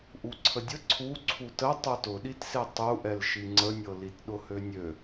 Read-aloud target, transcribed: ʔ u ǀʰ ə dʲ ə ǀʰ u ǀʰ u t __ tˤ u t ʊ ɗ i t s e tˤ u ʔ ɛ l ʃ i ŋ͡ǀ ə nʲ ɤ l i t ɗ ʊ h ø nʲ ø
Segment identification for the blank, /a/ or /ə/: ə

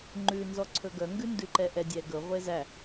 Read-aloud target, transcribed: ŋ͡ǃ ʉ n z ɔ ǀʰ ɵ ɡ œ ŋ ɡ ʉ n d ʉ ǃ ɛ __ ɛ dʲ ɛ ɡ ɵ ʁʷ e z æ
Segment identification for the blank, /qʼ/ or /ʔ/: ʔ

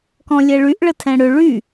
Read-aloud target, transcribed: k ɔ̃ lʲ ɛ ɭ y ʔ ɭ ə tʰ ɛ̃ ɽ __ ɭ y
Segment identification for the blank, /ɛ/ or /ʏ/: ʏ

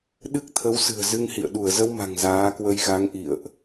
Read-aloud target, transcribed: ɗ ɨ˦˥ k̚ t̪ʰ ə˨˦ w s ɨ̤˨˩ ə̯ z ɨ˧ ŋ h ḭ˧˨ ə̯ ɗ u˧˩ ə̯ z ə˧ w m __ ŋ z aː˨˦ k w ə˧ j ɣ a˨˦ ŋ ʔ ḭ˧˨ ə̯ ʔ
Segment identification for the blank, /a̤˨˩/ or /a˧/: a̤˨˩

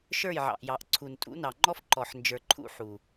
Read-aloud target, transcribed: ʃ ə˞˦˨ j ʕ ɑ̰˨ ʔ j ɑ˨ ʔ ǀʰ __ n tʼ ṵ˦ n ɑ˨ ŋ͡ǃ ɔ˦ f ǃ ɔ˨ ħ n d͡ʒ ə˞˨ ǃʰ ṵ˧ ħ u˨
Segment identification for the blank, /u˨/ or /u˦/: u˨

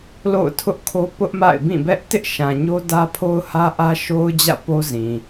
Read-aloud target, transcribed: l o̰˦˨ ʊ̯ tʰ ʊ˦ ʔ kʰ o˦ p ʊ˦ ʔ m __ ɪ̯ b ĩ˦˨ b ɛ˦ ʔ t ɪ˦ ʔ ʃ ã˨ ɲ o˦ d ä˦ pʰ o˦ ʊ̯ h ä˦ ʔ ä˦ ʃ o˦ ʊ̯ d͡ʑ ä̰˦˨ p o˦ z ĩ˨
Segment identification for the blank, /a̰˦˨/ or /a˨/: a̰˦˨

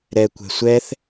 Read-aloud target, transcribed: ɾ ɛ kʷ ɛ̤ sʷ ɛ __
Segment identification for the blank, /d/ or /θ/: θ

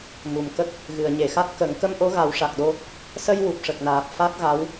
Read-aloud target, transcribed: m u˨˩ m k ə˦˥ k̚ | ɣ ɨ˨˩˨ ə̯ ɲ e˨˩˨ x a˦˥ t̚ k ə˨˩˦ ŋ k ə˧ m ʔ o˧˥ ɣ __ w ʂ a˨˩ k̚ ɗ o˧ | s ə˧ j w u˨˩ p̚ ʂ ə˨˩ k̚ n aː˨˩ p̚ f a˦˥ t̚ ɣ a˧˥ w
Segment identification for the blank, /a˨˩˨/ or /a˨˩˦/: a˨˩˦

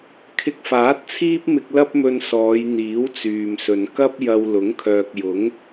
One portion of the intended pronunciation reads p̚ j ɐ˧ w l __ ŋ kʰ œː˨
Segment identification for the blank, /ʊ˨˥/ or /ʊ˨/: ʊ˨˥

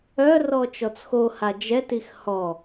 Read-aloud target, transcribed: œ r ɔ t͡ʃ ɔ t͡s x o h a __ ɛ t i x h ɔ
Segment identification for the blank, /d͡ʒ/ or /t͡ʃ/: d͡ʒ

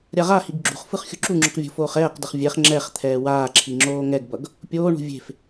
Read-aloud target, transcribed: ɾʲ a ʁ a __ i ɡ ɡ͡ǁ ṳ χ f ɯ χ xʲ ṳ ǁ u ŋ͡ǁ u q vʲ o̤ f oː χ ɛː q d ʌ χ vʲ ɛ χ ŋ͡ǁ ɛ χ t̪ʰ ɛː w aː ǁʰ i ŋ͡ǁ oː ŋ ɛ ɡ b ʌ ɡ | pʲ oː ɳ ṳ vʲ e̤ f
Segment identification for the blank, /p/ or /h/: h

